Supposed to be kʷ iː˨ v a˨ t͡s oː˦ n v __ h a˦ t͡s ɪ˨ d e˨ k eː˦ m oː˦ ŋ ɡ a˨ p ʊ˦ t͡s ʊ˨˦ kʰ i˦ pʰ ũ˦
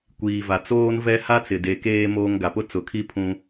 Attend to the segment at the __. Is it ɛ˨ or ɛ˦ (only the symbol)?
ɛ˦